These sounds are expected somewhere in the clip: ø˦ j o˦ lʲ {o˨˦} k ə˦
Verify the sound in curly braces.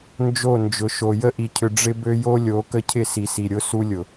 correct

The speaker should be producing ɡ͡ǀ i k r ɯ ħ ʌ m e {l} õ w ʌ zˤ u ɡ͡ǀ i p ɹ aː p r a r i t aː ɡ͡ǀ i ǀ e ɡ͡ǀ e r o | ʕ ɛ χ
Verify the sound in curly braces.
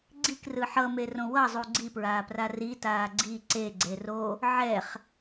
incorrect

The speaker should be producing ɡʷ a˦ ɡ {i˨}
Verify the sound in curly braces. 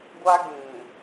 incorrect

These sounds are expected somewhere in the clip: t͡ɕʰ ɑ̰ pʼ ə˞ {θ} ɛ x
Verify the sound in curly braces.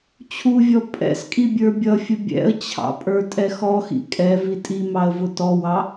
incorrect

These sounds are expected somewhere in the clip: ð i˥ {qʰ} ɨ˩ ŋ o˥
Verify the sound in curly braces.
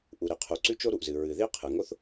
correct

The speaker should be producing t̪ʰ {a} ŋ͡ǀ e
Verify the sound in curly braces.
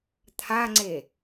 correct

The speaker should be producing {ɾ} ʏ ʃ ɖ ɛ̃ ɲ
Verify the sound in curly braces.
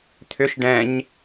incorrect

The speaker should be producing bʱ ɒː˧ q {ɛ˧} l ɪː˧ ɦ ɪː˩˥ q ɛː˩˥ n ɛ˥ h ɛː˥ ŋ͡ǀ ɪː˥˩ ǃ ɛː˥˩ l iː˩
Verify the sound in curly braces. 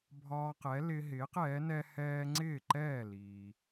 incorrect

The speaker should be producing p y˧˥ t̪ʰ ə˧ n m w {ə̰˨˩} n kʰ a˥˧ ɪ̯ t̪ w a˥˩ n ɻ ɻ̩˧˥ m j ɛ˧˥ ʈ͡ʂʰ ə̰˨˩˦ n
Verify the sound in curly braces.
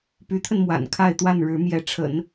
incorrect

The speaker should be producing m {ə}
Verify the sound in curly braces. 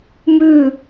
incorrect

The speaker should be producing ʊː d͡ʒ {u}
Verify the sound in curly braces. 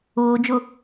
incorrect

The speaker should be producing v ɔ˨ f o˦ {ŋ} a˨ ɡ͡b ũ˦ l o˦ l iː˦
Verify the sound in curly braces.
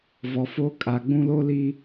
incorrect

